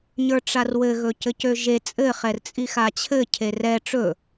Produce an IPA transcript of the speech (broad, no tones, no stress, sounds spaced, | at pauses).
ɲ ə˞ ʈ͡ʂ a r w ɘ ɣ ɵ c ɘ c ø ʒ e t͡sʼ ɘ χ ɛ r t͡sʼ i x a t͡ɕʰ ɘ cʰ e r ɛ ʈ͡ʂ ɵ